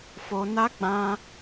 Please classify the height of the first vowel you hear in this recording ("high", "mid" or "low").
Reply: mid